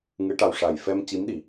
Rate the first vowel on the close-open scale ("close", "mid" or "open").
close